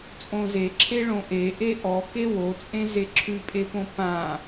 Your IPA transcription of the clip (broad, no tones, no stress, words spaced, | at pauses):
t͡sʼõzeǁʰe ɭõʔeʔe ʔɔ kewot͡sʼẽ zeǁʰʉpʼepõ pã